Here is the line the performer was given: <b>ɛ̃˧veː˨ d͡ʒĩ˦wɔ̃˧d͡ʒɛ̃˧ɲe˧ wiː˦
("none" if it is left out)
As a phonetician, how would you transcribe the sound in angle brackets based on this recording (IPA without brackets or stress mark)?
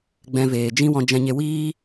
ɡ͡b